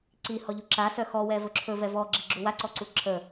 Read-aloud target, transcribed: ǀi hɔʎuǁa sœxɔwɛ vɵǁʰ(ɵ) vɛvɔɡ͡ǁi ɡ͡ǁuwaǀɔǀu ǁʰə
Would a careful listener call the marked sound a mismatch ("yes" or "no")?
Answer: no